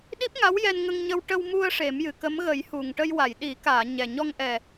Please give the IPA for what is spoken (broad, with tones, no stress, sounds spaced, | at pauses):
ɗ i˦˥ p̚ ŋ a˧˥ w j ɛ˧ n ŋ ə˧ ŋ ɲ ə˧ w ʈ ə˧ w m u˧ ə̯ ʂ e˨˩˦ m j ɨ˨˩ k ə˧˥ m ɣ ə˨˩˦ j h u˨˩ ŋ ʈ ə˧ j w a˨˩˨ j ɗ i˨˩˦ k aː˨˩˨ ɲ ɛ˨˩ ɲ ɔ˧ ŋ ʔ ɛ˨˩